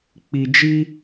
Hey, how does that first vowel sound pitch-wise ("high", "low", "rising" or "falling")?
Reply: low